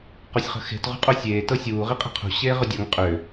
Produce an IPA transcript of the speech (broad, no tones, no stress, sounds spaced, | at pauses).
q o sʲ χ ə̤ x e̤ t ʁ ṳ qʼ o sʲ eː t ɤ sʲ uː ʁ i qʼ i̤ qʰ ṳ ɕ eː ʁ ʏ dʲ ɤ ŋ qʼ ʏː